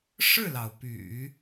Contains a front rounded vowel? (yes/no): yes